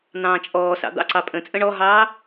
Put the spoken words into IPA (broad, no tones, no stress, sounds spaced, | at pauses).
n̪ ɑ̃ː t͡ʃʼ ɔː s ɑ̰ d̪ ɑ̰ ǀ ɑ pʼ ə̃ t͡sʼ ə̃ ɳ ɔ ɦ ɑː